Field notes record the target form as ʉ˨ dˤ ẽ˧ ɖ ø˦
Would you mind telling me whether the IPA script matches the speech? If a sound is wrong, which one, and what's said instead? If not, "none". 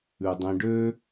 none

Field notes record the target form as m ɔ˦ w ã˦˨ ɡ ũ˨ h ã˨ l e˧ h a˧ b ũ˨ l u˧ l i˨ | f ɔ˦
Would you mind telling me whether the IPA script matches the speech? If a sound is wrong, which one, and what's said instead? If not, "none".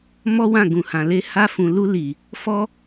b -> f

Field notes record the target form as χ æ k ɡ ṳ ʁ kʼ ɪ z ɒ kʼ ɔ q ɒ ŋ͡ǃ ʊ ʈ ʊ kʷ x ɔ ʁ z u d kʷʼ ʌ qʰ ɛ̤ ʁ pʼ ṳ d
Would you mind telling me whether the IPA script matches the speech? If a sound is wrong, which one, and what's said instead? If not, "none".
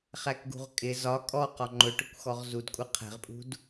none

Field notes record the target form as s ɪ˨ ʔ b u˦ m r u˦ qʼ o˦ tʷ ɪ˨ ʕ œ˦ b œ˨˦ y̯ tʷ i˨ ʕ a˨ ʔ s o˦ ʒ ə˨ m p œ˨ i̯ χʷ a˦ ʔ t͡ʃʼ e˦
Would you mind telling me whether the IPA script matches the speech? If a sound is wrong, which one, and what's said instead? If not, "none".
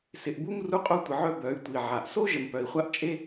none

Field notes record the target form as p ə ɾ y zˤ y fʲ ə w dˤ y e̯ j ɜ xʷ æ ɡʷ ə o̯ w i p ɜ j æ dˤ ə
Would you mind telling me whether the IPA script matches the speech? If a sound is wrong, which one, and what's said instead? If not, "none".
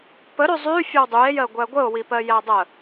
xʷ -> ɡʷ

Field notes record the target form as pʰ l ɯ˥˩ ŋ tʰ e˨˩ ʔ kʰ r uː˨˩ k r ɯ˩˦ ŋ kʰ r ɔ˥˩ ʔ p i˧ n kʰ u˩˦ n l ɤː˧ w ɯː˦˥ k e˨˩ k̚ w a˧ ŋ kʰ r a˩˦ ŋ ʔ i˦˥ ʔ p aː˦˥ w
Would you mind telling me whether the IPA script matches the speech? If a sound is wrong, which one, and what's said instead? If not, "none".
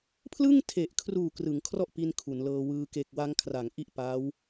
none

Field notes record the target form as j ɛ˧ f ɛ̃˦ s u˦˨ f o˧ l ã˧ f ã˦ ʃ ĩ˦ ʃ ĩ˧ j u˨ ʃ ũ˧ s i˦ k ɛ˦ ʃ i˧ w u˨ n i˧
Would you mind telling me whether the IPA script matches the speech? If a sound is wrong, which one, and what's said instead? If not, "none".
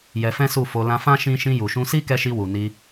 none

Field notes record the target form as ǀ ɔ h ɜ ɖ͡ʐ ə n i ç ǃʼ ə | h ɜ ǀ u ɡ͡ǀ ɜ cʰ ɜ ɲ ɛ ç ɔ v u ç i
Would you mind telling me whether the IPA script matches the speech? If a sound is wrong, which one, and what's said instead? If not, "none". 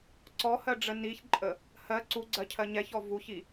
none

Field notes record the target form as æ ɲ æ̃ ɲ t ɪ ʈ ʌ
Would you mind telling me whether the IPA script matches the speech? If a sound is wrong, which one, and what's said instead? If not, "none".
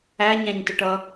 none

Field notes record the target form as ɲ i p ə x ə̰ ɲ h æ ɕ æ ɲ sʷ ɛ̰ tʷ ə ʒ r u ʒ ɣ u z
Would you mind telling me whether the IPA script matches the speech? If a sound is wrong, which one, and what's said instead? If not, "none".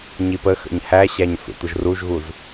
none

